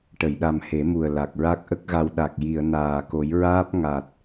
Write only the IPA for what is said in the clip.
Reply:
ʈ ə˨˩˨ j ɗ a˨˩ m h e˨˩˦ m u˨˩ ə̯ l a˨˩ k̚ ɹ a˦˥ k̚ ʔ ə˦˥ k̚ ɣ a˧ w ɗ a˨˩ k̚ j i˨˩˨ ə̯ n aː˨˩ k o˨˩˦ j ɹ aː˦˥ p̚ ŋ a˨˩ t̚

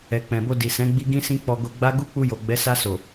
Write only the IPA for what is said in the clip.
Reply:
ɛ˨ k͡p ɛ̃˨ b o˧ d i˨ s ɛ̃˨˦ ɡ͡b i˦ ɡ ĩ˦ s ĩ˦ k͡p ɔ˧ ɡ o˧ ɡ͡b a˦ ɡ u˦ k͡p u˧ j o˨ ɡ͡b ɛ˨˦ s a˧ s o˨

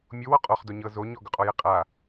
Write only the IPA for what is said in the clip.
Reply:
mʲ o w ɔ qʼ ɔ χ d o ɲ ɤ z o ɲ ɔ ɡ ɵ qʼ ɔ j ɛ qʼ a

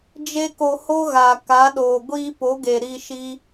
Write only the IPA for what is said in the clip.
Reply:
d͡ʒ e˦ k o˧ h o˦ ɣ a˨ k a˨˦ ɗ oː˨ ɡʷ iː˧ p o˨˦ ɡ e˨ ɾ i˧ ʃ i˦

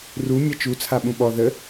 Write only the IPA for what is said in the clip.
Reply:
r u mʲ ɛ t͡ʃ u t͡sʰ a ɓ ũ ɓ ɔ ð ə

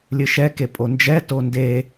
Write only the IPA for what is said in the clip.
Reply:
lʲ ɨ ʃ ɛ k e pʼ o n d͡ʒ ɛ t o n d e

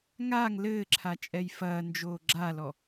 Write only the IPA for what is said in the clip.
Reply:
ŋ a ŋ l ɘː ǁʰ a t͡ʃʼ ɛ j f ɐː n d͡ʒ oː ɡ͡ǁ a l ɔ

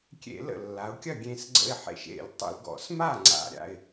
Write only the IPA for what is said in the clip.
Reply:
kʲ ḛ˧˩˧ l ə̰˨˩ lː a˩˧ ʊ̯ kʲ ɐ˥˨ ɡʲ ẽ˧ s ɡ͡ǀ ə̰˧ ɪ̯ ħ ḛ˨˩ ʃ ḛ˧˩˧ lʲ tˤ ə̰˧˩˧ l ɡ ɔ̰˧˩˧ s m a˥˨ ŋ͡ǀ a̰˨˩ ɾʲ a̰˥˨ ɪ̯

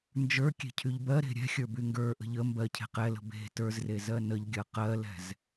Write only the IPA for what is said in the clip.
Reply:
n d͡ʒ ə˞ kʲ e̤ cʰ y ʎ b ɜ ɾ e̤ ɾʲ ɛ̤ xʲ ə˞ b y ŋ ɡ ə˞ ʔ ə̤ ʎ ə m b ɜ cʰ e̤ q ɛ l ə̤ b e̤ t ə˞ z r e z ɜ n ə ʎ ɡʲ ɜ q ɜ l ɛ̤ z

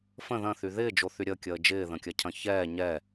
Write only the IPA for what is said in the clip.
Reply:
f ə̃ ð ɐ̃ θ y ð ɪː d͡ʒ o θ y ɾʲ ə kʲ əː d͡ʒ ɪː ð ə̃ kʲ ɐ cʰ ɐ̃ ç ɛː ɲ ɛ

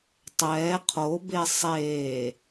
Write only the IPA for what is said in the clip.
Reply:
tˤ ɛː qʰ o b e sˤ eː

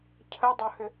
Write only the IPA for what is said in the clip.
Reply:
cʰ ə dˤ o h ʏ

